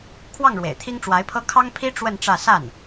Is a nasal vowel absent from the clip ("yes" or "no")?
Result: yes